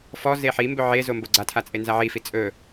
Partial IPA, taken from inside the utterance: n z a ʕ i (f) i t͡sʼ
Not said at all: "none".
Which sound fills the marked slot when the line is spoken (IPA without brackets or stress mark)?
f